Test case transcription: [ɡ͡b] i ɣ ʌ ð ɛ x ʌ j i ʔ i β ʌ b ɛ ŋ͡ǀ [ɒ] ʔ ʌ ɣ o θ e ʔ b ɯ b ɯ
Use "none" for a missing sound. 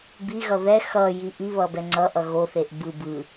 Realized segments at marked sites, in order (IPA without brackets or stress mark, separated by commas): b, ʌ